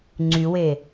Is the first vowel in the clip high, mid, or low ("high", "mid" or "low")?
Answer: high